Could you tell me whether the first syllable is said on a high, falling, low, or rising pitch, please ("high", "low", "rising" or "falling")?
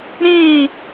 falling